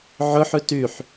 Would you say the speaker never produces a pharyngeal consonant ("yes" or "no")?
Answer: no